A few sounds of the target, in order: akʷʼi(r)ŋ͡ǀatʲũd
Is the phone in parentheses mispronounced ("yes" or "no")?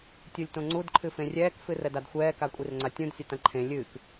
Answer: no